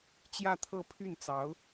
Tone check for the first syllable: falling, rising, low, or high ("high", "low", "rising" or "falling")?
falling